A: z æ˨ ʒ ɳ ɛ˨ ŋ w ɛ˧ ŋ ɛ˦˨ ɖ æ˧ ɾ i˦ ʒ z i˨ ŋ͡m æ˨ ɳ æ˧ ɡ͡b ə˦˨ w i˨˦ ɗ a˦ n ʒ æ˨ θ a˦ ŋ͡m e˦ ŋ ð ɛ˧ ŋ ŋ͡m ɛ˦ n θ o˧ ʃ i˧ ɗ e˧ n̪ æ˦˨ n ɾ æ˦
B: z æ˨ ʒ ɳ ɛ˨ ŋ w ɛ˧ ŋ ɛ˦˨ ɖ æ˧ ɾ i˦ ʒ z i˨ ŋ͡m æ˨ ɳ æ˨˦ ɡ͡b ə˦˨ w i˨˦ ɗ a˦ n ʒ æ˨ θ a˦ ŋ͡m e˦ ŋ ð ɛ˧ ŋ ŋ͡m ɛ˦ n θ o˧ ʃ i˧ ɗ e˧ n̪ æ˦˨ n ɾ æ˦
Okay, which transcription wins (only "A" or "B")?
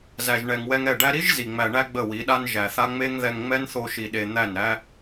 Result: A